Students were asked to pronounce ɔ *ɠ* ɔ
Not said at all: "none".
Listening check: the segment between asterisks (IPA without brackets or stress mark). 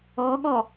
ɠ